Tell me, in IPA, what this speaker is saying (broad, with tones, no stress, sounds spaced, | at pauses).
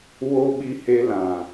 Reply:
w o˦ ɓ i˧ h e˧ l ã˨